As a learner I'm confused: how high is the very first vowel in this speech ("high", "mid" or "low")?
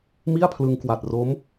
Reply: high